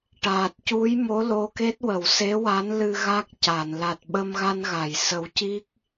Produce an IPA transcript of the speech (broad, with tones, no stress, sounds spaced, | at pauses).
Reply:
ʈ aː˨˩ t̚ c u˧˥ j m o˧˥ l o˧˥ k e˦˥ t̚ w ə˨˩˨ w s e˧˥ w a˧˥ n l ɨ˧ ɣ a˦˥ k̚ c a˨˩˨ n l a˨˩ t̚ ɓ ə˧ m ɣ a˧ n ɣ a˨˩˨ j s ə˨˩˦ w c i˦˥ k̚